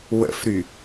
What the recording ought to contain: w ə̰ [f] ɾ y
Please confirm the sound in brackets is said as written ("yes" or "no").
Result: yes